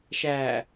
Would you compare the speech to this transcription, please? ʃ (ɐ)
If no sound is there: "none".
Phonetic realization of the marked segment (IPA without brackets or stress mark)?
æ